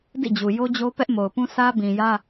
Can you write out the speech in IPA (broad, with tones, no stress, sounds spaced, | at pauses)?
d ḭ˦˨ d͡ʑ u˨ j o˦ d͡ʑ o˦ p ɛ˦ ʔ m o˨ ʊ̯ p ũ˦ sʰ ä˦ b ĩ˨ j ä˦